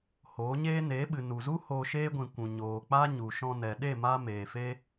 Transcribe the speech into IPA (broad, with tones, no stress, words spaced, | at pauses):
hoː˨˦ɲeː˦ neː˨˦ɓɨ˨ nu˨zu˦ hoː˧ʃeː˦ɡʷĩ˨kʷũ˨ ɲoː˨k͡pa˦ɲu˨ ʃɔ̃˧nɛ˨ ɗe˦˨ maː˦ meː˨fe˦